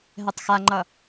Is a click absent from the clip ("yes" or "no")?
no